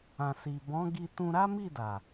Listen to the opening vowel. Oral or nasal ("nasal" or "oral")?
nasal